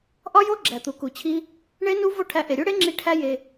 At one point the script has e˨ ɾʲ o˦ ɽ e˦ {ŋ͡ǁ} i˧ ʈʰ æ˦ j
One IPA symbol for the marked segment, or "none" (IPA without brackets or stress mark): ŋ͡ǁ